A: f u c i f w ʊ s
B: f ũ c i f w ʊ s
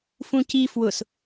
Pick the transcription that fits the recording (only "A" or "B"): B